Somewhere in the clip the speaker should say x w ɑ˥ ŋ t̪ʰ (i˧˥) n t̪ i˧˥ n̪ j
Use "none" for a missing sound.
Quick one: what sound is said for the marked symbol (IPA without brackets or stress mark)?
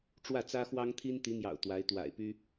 i˥